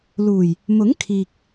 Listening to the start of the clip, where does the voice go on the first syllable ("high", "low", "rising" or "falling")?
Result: low